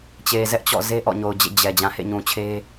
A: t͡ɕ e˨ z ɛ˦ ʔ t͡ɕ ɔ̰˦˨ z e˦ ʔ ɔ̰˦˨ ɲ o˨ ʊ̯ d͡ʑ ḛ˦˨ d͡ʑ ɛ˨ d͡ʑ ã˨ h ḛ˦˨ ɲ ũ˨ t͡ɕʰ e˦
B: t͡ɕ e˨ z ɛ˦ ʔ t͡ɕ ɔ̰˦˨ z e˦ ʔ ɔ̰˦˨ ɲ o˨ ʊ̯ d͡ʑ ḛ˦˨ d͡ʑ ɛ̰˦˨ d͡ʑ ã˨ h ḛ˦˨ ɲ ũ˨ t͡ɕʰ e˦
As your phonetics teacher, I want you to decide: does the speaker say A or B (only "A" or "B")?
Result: A